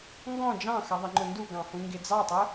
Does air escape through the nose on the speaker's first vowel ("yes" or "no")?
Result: yes